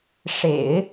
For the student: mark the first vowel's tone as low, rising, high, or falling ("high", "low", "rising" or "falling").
low